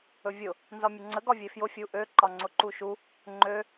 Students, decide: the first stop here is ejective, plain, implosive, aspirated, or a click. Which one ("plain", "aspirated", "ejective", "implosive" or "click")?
click